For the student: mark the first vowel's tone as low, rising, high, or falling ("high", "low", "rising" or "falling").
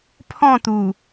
falling